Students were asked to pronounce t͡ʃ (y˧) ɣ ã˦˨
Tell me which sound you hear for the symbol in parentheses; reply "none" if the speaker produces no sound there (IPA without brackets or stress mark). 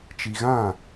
i˧